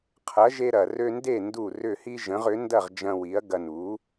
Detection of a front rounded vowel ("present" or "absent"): present